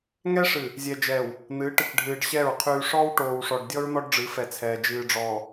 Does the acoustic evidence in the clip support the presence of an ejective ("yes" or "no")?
no